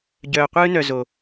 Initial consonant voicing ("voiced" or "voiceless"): voiced